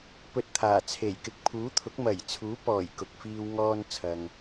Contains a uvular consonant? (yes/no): no